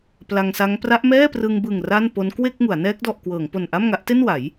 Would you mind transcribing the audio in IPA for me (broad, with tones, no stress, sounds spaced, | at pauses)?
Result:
p l a˧ ŋ s a˦˥ ŋ p r a˦˥ ʔ m ɛː˥˩ p r ɯ˧ ŋ b ɯ˨˩ ŋ r a˥˩ n p o˦˥ n k w e˥˩ k̚ ŋ u˩˦ a̯ n ɛː˦˥ k̚ d ɔ˨˩ ʔ k w ɤː˩˦ ŋ p o˨˩ n ʔ a˥˩ m ŋ a˦˥ ʔ t e˥˩ n w a˩˦ j